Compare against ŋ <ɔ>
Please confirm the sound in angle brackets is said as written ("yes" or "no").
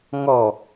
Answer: yes